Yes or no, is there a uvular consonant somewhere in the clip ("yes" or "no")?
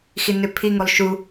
no